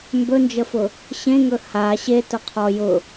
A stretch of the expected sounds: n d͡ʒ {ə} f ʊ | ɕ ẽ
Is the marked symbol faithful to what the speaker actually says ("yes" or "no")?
yes